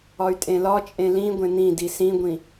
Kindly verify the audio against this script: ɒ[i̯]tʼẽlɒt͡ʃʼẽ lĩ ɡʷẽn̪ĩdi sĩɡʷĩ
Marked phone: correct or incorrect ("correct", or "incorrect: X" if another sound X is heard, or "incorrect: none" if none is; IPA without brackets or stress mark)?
incorrect: y̯